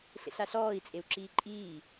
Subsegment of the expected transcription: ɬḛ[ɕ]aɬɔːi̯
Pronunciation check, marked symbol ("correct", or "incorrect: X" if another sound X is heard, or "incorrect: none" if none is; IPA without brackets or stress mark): incorrect: ɬ